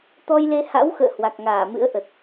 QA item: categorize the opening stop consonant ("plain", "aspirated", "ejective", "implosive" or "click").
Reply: plain